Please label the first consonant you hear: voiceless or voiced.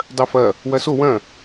voiced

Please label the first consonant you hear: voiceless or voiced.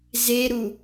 voiced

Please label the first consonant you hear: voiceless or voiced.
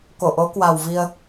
voiceless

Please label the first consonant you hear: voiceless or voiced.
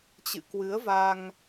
voiceless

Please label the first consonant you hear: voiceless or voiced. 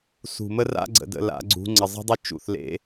voiceless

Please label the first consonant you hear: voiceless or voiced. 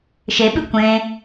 voiceless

